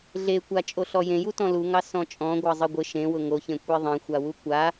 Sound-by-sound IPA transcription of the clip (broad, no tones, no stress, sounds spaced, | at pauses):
ɮ e kʷ a t͡ʃʼ o ɬ ɔ j ẽ j u t ɔ̃ l u ŋ ɑ s ɔ̃ t͡ʃʼ ɔ̃ ɡʷ ɑ zˤ ɘ ɡʷ ɘ ʃ ẽ w ʊ ŋ o ç ẽ kʷ e ðˤ ẽ xʷ a w u kʷ a